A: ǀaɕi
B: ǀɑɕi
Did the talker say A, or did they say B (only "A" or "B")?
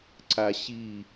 A